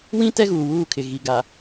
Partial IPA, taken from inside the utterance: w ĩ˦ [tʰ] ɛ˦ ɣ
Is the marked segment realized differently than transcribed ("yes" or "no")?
yes